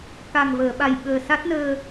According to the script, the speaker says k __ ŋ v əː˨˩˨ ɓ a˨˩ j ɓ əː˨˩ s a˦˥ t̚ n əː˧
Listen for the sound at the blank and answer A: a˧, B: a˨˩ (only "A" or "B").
B